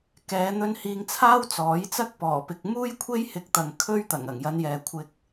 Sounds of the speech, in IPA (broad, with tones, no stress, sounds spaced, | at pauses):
k ɛː˨˧ n̪ ɵ˧ n h iː˧ ŋ t͡sʰ aː˥ w t͡s ɔː˨˥ j t͡s ɐ˥ k̚ p ɔː˨˩ p ɪ˨ k̚ m uː˥ j kʷʰ e˥ j h ɪ˧ k̚ t̪ ɐ˨ ŋ kʰ ɵ˥ ɥ t̪ ɐ˨˩ ŋ ɐ˨˩ ŋ j ɐ˨˧ n j ɛː˨ kʷʰ ɪ˧ k̚